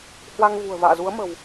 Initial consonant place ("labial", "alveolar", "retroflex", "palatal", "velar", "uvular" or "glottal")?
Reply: glottal